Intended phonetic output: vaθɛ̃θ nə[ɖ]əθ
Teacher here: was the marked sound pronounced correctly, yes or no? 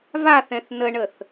no